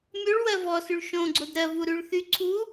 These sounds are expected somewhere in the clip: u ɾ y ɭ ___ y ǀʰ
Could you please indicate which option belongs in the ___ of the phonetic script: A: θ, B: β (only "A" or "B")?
A